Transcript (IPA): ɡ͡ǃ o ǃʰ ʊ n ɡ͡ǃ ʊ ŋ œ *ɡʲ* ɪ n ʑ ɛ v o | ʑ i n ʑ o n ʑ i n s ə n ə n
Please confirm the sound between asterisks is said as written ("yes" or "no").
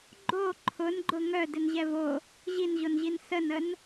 no